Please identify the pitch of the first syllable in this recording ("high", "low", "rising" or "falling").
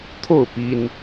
falling